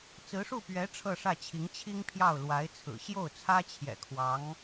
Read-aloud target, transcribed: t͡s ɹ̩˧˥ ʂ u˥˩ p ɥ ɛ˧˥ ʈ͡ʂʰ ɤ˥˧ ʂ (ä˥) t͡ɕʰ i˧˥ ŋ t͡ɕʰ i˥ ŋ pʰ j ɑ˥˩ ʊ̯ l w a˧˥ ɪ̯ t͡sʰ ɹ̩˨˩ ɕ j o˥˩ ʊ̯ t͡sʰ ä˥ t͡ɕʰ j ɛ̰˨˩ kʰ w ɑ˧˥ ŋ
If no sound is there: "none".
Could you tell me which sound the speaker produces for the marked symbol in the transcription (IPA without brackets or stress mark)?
ä˥˩